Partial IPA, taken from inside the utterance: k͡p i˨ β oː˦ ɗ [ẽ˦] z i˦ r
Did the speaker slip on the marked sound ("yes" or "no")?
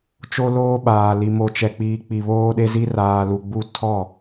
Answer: yes